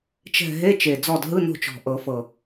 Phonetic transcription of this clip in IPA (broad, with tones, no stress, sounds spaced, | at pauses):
t͡ʃ ɛ̤˦˨ ɦ e˧˥˧ t͡ʃ e˨˩ d͡z ɔ˦˨ d ɦ ɯ˧˥˧ n o̤˦˨ t͡ʃ ɔ̤˨˩ ʔ ɤ˨˩˦ f ɤ˨˩